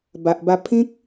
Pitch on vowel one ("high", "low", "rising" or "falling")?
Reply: low